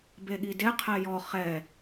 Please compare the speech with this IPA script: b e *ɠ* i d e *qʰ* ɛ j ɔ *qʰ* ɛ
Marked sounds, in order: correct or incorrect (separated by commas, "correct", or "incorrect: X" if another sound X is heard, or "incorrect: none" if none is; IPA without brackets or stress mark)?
correct, correct, incorrect: χ